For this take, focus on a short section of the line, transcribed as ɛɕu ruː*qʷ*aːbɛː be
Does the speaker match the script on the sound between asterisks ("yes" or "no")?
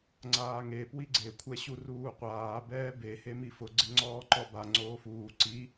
yes